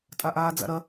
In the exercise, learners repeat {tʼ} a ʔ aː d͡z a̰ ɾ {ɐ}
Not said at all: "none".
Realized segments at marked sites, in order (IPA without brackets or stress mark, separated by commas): tʼ, ɐ